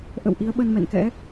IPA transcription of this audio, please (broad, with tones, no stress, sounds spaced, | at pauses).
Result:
ʔ ə̰˧˨ w ʔ i˨˦ ə̯ ɓ ə˧ n m ɛ̰˧˨ n k ɛ̰˧˥